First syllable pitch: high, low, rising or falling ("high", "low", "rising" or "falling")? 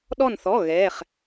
falling